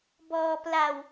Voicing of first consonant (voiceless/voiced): voiced